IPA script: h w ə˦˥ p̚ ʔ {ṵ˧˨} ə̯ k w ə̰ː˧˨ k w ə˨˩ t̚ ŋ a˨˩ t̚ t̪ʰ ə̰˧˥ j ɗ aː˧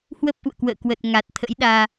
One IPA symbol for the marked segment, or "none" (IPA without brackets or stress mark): ṵ˧˨